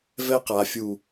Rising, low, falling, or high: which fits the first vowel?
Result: high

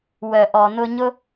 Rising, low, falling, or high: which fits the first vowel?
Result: low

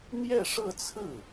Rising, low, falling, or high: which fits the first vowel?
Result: falling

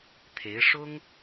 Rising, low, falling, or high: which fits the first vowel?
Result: rising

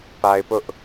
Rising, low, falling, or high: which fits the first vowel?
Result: low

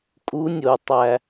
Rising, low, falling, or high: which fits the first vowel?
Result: rising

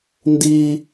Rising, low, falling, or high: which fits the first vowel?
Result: high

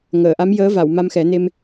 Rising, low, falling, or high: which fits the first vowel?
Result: low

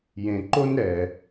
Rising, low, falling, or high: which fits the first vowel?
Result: low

